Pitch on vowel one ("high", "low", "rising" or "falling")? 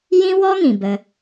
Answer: high